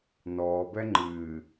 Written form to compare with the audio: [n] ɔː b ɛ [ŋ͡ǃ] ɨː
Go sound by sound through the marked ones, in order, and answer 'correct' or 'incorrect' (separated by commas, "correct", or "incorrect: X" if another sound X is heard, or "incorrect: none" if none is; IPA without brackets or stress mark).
correct, correct